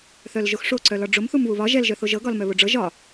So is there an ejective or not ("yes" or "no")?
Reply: no